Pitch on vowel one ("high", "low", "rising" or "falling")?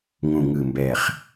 low